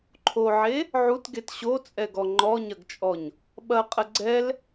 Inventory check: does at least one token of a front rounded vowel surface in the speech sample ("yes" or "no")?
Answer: no